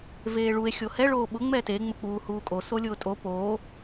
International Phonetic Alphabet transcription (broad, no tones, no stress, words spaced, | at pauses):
veːɭue̯ xʲohɛ ɭoːɓʊ ŋ͡mɛte ŋ͡mʊk͡puːhuːkʼo solʲʊːtʼo poː